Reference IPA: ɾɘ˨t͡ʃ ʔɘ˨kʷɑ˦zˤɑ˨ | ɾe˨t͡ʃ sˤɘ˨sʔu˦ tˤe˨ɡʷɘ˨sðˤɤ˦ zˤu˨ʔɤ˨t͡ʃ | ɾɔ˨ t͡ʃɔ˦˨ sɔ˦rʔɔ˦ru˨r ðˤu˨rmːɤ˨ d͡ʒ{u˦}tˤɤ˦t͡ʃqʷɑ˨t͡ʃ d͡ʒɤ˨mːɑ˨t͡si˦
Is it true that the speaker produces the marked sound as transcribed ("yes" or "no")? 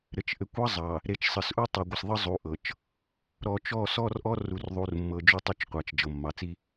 yes